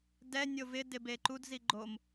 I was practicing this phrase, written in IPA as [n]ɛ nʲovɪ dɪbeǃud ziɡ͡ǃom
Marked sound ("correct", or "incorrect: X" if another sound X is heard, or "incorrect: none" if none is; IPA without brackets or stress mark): incorrect: d